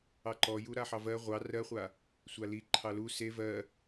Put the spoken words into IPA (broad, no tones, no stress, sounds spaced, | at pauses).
ɑ ǃ ɔ j u ɾ a ħ ɑ v ɜ ʁʷ ɑ r ɜ χʷ a | sʷ a l i ǃʰ ɑ l u s e v ɜ